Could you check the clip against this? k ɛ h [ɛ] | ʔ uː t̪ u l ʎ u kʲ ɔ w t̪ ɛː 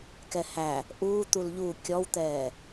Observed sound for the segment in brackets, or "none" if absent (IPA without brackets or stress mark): æ